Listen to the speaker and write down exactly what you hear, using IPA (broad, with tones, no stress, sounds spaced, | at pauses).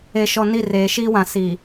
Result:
e˨ ʃ ɔ˨ n i˦˨ r eː˨ ʃ iː˦ w ã˨ s i˨